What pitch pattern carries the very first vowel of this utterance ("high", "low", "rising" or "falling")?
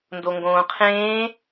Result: low